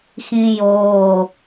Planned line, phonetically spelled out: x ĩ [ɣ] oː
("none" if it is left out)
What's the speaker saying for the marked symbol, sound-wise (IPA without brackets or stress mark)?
j